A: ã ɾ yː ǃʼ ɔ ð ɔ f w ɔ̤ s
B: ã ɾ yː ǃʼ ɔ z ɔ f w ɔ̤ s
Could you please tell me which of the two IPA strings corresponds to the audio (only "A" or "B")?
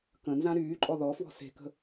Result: A